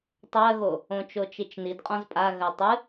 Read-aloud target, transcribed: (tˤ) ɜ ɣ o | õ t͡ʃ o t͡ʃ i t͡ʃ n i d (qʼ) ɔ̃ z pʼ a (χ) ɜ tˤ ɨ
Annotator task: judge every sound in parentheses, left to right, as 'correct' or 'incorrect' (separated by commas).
correct, correct, incorrect